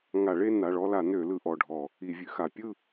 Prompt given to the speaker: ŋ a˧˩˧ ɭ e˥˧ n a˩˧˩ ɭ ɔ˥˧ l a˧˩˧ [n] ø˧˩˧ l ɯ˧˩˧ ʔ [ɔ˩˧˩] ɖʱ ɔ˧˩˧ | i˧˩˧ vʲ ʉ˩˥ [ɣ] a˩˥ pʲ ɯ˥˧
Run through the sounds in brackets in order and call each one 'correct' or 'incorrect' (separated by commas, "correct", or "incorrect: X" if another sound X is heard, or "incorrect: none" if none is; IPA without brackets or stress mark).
correct, correct, incorrect: x